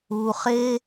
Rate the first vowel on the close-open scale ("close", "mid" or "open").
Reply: close